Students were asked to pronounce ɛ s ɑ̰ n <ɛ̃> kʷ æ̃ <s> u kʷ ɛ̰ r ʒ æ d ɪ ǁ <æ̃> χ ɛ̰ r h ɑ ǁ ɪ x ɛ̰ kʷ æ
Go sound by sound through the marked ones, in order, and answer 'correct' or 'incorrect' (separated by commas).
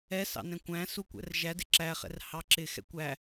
correct, correct, incorrect